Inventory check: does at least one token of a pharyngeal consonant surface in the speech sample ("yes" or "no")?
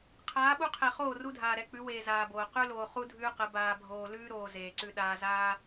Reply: no